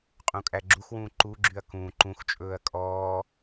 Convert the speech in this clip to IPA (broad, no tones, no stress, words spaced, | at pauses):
qʼũkʼæɡ͡ǁuxwũː ǃuɡ͡ǁyɐ̯ kũː ǃũxt͡ʃʼɵːɐ̯ kʼɔː